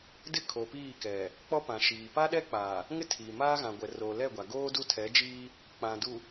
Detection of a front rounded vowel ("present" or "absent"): absent